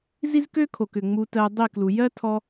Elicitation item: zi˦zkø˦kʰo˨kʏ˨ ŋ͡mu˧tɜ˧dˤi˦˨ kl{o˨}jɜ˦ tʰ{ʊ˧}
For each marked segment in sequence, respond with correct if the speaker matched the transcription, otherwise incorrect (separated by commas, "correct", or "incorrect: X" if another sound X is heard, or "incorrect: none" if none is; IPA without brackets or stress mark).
incorrect: u˨, incorrect: ɔ˧